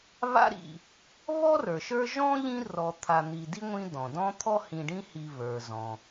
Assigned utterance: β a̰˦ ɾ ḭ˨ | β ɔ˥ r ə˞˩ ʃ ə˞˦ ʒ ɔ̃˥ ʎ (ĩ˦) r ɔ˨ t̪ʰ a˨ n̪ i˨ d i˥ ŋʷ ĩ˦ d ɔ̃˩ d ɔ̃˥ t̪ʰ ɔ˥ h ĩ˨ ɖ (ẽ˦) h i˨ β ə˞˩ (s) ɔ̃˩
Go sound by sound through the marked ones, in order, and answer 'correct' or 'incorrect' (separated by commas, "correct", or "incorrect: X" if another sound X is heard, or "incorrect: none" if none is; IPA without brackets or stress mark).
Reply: correct, incorrect: ĩ˦, incorrect: z